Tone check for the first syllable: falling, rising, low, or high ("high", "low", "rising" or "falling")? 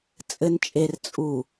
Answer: low